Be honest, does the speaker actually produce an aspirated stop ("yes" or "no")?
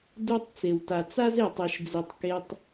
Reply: no